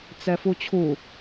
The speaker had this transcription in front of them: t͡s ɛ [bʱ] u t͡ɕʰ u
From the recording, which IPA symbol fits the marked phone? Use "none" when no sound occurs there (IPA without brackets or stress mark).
f